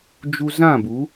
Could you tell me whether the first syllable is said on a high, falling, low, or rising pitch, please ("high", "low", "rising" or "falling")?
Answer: high